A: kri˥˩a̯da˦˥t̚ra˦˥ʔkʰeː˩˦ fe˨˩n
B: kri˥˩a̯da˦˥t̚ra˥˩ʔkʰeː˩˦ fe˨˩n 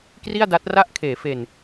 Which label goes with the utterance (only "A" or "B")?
B